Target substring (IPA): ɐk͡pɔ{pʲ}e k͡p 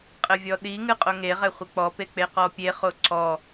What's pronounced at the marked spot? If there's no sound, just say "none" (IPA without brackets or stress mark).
p